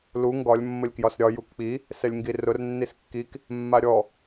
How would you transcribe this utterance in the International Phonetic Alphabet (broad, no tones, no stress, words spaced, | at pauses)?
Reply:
lu ŋɡɒlʲ mːəlʲkjɒsɾʲɒ jukk͡pi | sɛlʲŋɡirʊr nːiskːik | mːaɾʲɔ